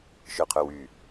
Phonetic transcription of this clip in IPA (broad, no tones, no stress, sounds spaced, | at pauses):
ʃ œ qʰ œ w y